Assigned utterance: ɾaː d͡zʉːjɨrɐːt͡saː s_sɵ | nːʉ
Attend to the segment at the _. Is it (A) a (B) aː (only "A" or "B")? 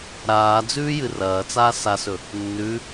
A